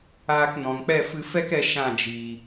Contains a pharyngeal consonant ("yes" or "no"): no